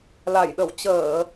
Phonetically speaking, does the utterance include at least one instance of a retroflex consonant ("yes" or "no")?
no